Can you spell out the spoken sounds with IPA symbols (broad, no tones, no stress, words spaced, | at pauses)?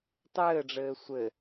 tˤɘːɖ͡ʐɘː sʷɘ